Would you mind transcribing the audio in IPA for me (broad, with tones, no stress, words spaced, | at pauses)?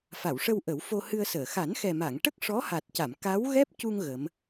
fa˨˩˨wʂə˧w ʔə˨˩˦wfo˧hɨ˧ə̯səː˨˩˨ xa˨˩˦nxɛ˨˩ ma˨˩˨ŋʈə˦˥k̚ ʂɔ˧˥ha˨˩t̚ca˨˩˨m ka˧˥w ɣɛ˦˥p̚cu˧ŋ ɣə˧˥m